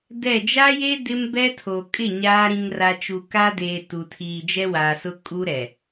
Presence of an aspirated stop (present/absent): present